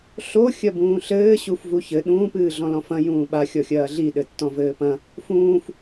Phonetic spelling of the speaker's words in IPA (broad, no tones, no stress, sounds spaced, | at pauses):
ɬ o xʲ ɐ b ũː ɬ ɘː ɕ u f v u ç ɘ ɗ ũː p ɨː ɮ ɔ̃ l ɔ̃ f ɐ̃ j ũː ɓ a xʲ ɔ xʲ ɐː ɮ i ɗ ɘ tː ɔ̃ v ɘː p ɐ̃ | f ũː f